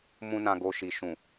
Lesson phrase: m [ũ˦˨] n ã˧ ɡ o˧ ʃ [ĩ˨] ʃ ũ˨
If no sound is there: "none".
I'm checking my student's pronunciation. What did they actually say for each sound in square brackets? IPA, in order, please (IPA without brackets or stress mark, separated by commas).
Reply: ũ˦, i˨